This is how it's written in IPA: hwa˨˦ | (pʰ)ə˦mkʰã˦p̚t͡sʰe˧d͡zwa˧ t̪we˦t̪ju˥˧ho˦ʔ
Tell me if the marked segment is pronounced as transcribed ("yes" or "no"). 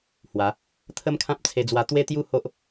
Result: no